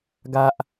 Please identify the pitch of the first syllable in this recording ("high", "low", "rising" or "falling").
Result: high